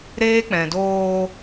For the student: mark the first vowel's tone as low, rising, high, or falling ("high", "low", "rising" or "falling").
high